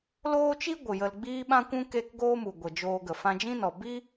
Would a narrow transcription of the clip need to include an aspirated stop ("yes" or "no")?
no